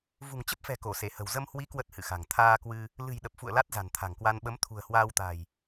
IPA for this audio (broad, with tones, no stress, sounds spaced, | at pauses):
v ṳ˨˩ ŋ t͡ɕ ə˦˥ p̚ f ɛ̤˨˩ k o˧˩ s e˧˩ h ə̤˨˩ w z ə˧ m h w i˨˦ k w ə˦˥ t̚ h ɨ̰˧˨ x a̤˨˩ ŋ t̪ʰ aː˧ k w ɨ˧ | l ɨ̤˨˩ j ɗ ə˨˩ p̚ f ṵ˧˨ ə̯ l a˦˥ t̚ z a̤˨˩ n t̪ʰ a̤˨˩ ŋ k w a˧ n ɓ ə˨˦ m t̪ʰ ṳ˨˩ ə̯ h w aː˧ w t̪ a̤˨˩ j